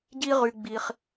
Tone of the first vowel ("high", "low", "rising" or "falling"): high